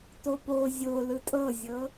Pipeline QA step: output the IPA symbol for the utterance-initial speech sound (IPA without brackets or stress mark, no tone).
t